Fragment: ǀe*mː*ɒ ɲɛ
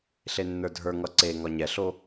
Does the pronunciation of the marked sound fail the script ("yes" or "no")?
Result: yes